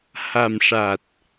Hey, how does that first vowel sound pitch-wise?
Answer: low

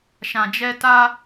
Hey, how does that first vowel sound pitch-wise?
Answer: low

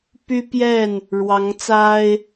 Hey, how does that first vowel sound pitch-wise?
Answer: high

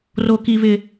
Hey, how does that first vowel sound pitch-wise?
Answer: high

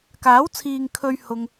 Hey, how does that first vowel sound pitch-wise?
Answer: rising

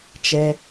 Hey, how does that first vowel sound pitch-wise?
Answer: low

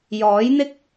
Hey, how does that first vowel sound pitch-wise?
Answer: rising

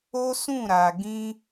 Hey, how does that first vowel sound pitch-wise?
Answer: high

